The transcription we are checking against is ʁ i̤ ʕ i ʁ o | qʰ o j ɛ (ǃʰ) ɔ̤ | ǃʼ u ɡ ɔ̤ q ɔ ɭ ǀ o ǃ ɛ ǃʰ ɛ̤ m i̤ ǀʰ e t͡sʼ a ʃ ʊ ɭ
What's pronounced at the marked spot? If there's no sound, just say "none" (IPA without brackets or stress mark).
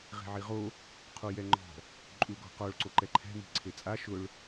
ŋ͡ǃ